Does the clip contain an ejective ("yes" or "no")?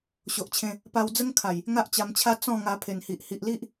no